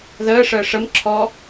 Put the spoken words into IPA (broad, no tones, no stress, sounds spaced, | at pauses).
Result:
ð əː ʂ əː ʂ ə m ǁʰ ɔ